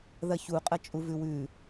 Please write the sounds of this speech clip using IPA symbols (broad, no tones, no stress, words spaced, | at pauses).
ðɐçuqʼɐ t͡ʃʼuvʉwʉ